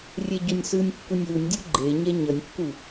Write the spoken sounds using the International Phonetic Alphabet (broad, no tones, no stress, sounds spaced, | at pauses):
rʲ ɛ ɟ o nʲ s ɯ nʲ kː u nʲ w u nʲ dʲ u ɡ͡ǃ e ɲ ɛ ɲ ʌ nʲ kː u